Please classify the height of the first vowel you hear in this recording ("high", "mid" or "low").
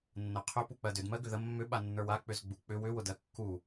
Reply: mid